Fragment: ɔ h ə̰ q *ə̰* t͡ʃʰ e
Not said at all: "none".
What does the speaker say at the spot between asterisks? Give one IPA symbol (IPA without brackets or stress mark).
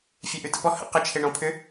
ə